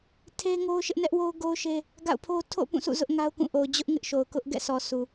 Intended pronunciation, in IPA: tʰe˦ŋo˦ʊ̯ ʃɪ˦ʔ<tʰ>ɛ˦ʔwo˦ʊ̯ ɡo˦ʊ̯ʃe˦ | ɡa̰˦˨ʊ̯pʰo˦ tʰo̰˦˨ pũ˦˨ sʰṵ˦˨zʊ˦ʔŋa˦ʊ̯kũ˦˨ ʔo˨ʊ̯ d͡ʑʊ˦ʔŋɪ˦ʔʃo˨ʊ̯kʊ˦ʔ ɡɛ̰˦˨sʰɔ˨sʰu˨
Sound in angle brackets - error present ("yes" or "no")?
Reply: yes